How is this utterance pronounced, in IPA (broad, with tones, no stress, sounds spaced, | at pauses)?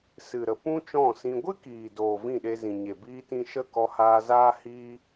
s ɨ˨ ɾ ə˨ p ũ˦ t͡ʃ ɔ̃˦˨ s ĩ˧ ɡʷ ɨ˦ k iː˨ d oː˨ v ĩ˦˨ ɗ e˧ z ĩ˨ ɲ e˨ b iː˧ t ĩ˧ ʃ ə˦˨ k ɔ˧ h aː˧ z aː˦ h iː˦